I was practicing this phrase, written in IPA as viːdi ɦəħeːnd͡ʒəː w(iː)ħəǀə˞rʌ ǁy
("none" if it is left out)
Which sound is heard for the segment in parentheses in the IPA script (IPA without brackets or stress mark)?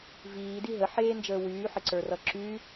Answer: yː